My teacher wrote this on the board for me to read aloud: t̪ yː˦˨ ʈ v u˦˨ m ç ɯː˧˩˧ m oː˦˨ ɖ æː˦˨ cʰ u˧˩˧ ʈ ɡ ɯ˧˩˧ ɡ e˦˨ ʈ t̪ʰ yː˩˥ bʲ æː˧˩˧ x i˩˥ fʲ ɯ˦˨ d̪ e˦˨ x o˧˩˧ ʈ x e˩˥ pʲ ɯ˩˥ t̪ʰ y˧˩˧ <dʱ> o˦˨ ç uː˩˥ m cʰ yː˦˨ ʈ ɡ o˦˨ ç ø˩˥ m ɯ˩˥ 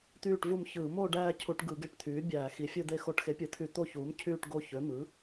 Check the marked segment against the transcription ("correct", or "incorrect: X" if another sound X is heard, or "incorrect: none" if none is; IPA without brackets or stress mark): incorrect: t̪